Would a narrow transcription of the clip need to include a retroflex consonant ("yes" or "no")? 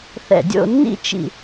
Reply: no